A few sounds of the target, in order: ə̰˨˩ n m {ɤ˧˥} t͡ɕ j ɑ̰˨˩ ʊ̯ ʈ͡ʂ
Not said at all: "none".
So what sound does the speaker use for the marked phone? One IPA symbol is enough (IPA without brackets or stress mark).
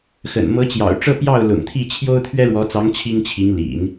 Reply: ɤ˧˥